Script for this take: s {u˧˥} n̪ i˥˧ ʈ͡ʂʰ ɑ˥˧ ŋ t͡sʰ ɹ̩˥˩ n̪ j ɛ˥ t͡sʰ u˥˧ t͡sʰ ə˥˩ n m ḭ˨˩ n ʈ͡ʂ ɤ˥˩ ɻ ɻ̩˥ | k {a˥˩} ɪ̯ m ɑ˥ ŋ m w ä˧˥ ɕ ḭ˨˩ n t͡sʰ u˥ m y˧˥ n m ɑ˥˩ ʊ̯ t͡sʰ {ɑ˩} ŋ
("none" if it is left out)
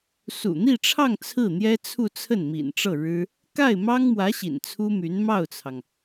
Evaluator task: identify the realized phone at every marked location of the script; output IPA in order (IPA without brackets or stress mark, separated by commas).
ṵ˨˩, a˥˩, ɑ˩